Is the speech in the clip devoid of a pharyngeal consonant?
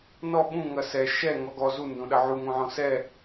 no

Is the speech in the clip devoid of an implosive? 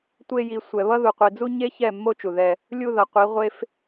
yes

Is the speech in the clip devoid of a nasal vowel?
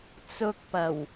yes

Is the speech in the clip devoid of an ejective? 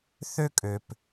no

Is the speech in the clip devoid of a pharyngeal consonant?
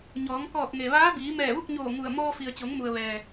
yes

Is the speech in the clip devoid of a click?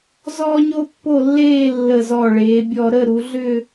yes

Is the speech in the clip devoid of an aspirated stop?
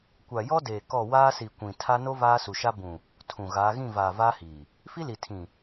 no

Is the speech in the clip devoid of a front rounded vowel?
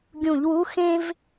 yes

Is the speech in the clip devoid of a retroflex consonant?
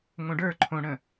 no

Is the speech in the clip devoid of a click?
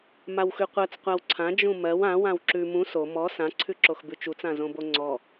no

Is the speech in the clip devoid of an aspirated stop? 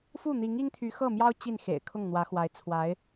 no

